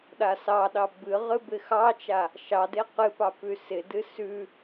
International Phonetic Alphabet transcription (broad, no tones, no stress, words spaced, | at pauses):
ɗasɑɗɑ bɨʁɨ bɪxɑt͡ʃa | ʃɑde qɨpɑ pʉsɪdɨ sʉ